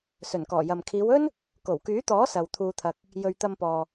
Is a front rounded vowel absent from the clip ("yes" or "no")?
no